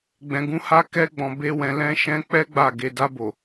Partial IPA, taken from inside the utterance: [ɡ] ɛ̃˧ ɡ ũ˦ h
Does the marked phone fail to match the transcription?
yes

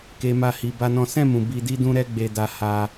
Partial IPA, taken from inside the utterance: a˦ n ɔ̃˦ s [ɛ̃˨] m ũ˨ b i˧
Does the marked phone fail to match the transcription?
yes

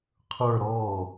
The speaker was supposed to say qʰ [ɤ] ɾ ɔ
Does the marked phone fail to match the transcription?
yes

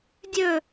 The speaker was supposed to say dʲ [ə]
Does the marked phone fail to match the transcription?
yes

